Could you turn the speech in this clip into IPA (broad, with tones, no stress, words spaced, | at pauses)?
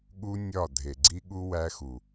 ɠu˦nʲɒ˦˨ dʱe˨ɡ͡ǀi˦ɠu˦ wæ˦xu˨